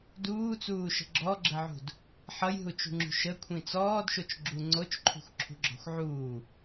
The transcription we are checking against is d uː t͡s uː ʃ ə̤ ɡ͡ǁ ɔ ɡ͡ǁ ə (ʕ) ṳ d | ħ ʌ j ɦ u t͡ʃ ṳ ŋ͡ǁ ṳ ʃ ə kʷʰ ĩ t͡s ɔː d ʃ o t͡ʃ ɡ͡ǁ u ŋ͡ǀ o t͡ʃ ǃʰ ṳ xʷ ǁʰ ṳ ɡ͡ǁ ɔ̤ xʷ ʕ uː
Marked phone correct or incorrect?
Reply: correct